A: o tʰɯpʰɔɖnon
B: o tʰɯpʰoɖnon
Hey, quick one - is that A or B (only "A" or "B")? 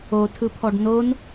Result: A